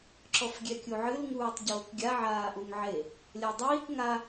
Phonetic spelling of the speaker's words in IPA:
ǁ ɔ f ɡʲ ɛ kʲ u ʕ ɨ l ŋ uː tˤ ɟ oː k ɡʲ a ʕ aː ʔ u ŋ ʕ e | lʲ a dˤ iː k ŋ a

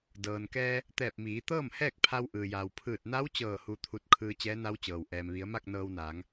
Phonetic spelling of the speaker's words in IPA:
d ɤː˩ n k ɛː˧ | t̪ ɛː˧˩ p̚ m iː˩˧ t̪ ɤː˥˨ m h ɛː˥˨ k̚ pʰ a˧ w ʔ ɯː˩ j aː˩ w pʰ ɯː˧˩ t̚ n a˧˥ w t͡ɕ ɤː˧˩ h u˧ t̪ʰ u˧ t̚ kʰ ɯː˧ t͡ɕ ɛː˧˥ n a˧˥ w t͡ɕ ɤː˩ w ʔ ɛː˩ m ʋ i˩˧ ə̯ m a˥˨ k̚ n ɤː˧ w n aː˩˧ ŋ

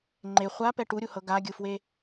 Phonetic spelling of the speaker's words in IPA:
ŋ͡ǃ e χʷ a p ɛ ʈ u ɾʲ u h ɤ ɡ a ɡʲ ɯ f w e

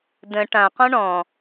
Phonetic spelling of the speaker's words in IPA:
d ə̃ ʈ ã q ɔ̃ ɳ ɔ̃

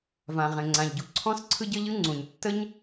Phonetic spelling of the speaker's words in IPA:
v ã˩ ʁ ẽ˩ ŋ͡ǀ ã˩ ʎ ɟ u˩ ǀʰ ɔ̃˥ s ǀʰ ɯ˥ ɟ ə˥ ʎ ɯ˥ ŋ͡ǀ ũ˩ ɲ tː ə˥ ɲ

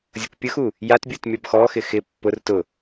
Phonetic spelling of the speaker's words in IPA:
zʲ ʊ k pʲ ʊ x u | j a t bʲ u t mʲ ɔ b x ɔ x ɪ x ɪ pː ʊ r t ʊ

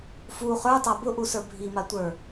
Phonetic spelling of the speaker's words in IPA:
f u χ ə˞ tˤ a b ʊ ʔ u s ə˞ bʱ i m a tʷ ə˞

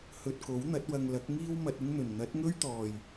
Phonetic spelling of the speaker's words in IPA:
h ɵ˧ t̚ k o˨˥ w n̪ ɐ˨˥ t̚ w ɐ˧ ŋ l ɐ˨˥ k̚ ŋ iː˥ w m ɐ˧ t̚ ɪ˥ ŋ n̪ ɵ˨˩ n n̪ ɐ˨˥ t̚ ŋ ɵ˥ ɥ t̪ ɔː˨˩ j

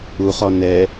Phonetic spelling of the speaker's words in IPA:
u χ ɔ n ɛ

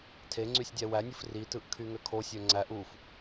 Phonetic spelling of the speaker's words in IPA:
tʰ e ŋ͡ǀ y sʲ dʲ æ w æ nʲ ɯ f r i t ɯ ʔ kʰ y ŋ ø kʰ o sʲ ø ŋ͡ǀ æ ʔ u f

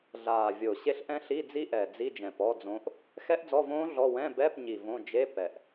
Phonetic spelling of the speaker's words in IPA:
ɮ aː˨˩ vʲ o˨˩ ɕ e˦˥ ɬ ʔ ɛ̃˦˥ ɬ i˧˥˧ d͡z i˦˥ ʔ ɛ˨˩ d͡z i˧˥˧ d͡ʒ ɛ̃˨˩ p ɔ˧˥˧ d͡z õ˦˥ ʔ | x ɛ˦˥ ʔ d͡z ɔ˧˥˧ v õː˦˥ ɮ ɔ˧˥˧ w ɛ̃˧˥˧ b ɛ˧˥˧ p ɲ i˨˩ v õ˧˥˧ d͡ʒ e˧˥˧ p ɛ˨˩ ʔ

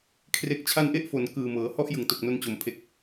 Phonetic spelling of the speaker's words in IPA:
kʰ r e˨˩ k̚ t͡ɕʰ a˧ n ʔ e˦˥ ʔ f o˨˩ n k ɯː˨˩ m ɤː˩˦ h ɔ˥˩ ʔ j ɯ˨˩ ŋ t o˨˩ k̚ n o˧ n t͡ɕ o˨˩ m pʰ e˨˩ k̚

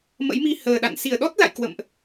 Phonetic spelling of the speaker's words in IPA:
m ə̰˧˥ j m i˧ h əː˨˩ ɗ a̰˧˨ n s i˧˩ ə̯ ɗ ɔ˦˥ t̚ l a̰˧˨ j k w ə̰˧˨ m ʔ

